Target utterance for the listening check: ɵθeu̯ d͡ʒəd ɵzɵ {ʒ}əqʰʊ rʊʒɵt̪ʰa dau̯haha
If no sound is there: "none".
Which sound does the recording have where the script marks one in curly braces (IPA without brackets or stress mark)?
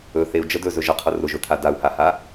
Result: ʒ